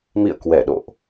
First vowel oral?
yes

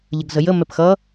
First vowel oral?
yes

